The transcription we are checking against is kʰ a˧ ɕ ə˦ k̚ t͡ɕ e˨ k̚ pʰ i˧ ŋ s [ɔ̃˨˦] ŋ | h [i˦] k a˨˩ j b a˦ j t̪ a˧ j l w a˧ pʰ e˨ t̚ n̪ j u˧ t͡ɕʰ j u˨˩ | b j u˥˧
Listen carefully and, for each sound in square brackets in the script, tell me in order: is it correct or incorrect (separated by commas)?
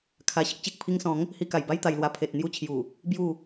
correct, incorrect